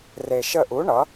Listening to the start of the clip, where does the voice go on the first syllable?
low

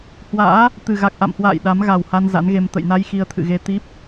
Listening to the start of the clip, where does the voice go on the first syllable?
rising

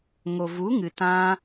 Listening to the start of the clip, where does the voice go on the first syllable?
low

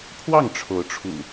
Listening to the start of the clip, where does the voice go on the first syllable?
falling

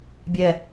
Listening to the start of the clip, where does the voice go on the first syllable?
low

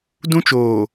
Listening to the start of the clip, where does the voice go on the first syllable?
high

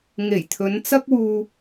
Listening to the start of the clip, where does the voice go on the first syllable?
low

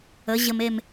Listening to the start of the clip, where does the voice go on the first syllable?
rising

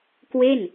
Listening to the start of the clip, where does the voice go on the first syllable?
falling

